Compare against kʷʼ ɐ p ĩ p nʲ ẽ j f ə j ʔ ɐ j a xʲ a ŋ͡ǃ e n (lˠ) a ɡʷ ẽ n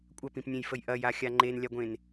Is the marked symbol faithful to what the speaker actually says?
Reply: no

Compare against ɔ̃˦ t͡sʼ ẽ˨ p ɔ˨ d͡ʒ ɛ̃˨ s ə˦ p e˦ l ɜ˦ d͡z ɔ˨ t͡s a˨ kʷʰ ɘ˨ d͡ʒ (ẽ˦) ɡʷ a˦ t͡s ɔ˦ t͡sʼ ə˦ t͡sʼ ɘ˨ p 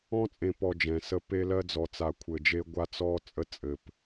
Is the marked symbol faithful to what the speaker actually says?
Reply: no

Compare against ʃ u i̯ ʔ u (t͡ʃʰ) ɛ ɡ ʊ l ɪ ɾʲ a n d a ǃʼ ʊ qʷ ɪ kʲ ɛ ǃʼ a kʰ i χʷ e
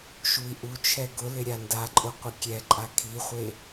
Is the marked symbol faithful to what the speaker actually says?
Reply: yes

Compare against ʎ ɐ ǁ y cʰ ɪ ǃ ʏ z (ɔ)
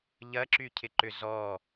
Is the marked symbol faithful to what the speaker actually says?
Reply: yes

